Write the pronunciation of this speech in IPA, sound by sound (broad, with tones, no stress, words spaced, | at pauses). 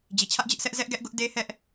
d͡ʑi˨t͡ɕʰä˦ʔd͡ʑɪ˦ʔsɛ˦ʔ zɛ˦ʔɡɛ˦ʔɡʊ˦ʔ de˦hɛ˦ʔ